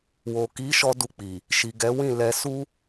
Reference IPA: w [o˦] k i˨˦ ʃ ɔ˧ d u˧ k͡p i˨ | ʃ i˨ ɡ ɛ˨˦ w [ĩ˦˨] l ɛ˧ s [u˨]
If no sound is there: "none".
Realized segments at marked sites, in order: o˨, ĩ˦˨, u˦

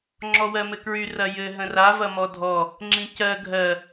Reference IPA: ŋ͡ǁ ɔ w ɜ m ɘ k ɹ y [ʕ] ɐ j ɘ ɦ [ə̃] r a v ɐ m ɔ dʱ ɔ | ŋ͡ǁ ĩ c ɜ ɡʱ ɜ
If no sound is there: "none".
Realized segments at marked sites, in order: r, ə̃

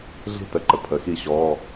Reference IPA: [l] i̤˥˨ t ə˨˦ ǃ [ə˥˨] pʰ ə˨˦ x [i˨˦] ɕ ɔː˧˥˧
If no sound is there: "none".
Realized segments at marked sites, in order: ɮ, ə˨, i˥˨

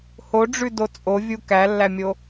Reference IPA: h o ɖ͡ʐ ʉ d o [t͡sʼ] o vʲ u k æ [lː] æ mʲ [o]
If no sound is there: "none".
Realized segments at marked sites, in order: t͡sʼ, lː, o

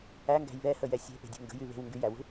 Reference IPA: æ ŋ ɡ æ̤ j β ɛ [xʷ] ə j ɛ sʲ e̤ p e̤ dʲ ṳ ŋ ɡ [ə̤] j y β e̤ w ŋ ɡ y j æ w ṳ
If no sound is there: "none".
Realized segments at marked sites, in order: h, ə̤

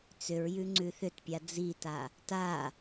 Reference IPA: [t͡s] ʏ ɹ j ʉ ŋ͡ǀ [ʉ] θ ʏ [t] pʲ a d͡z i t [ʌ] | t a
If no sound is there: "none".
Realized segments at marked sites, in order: t͡s, ʉ, t, a

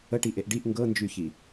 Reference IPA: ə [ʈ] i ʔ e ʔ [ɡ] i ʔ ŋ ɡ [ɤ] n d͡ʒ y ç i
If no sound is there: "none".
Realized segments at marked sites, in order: ʈ, ɖ, ɤ

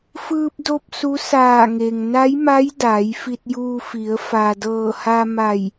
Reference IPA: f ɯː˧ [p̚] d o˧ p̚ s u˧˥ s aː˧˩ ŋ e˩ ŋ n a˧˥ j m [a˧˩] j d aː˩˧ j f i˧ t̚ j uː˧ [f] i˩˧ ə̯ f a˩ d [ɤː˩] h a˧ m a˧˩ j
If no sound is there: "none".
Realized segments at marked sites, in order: p̚, a˧˥, f, ɤː˧˩

